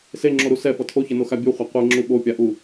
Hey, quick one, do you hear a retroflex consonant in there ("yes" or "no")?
no